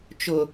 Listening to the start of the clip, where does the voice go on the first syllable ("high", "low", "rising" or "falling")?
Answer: low